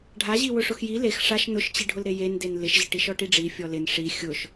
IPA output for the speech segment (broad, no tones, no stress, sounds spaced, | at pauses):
ɖʱ a ʑ i w ʊ ʂ ʊ x j i l e x ʂ a ʃ n ʊ ʃ t͡ɕ i ɖʱ ʊ l ɾ e j e n d e n l ɪ ʃ ʑ ɪ ʈ i ʃ ɔ ʈ i ɖ͡ʐ i fʲ ɔ l ɪ n ʂ i xʲ ʊ ʃ